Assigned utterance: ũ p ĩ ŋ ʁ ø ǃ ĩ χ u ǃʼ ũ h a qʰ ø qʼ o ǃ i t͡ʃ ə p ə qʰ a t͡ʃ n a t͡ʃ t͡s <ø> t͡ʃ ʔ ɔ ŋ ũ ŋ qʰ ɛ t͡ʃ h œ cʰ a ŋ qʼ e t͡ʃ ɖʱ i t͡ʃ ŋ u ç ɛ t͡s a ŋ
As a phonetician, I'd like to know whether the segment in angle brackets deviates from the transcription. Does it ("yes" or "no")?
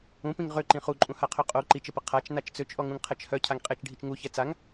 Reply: no